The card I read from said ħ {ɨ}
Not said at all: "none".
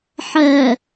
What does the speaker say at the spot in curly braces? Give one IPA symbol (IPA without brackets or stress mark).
ɛ